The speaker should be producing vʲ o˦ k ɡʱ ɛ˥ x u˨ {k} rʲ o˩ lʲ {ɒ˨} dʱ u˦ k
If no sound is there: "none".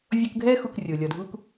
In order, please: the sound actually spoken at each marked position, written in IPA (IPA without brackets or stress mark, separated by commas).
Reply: k, ɒ˨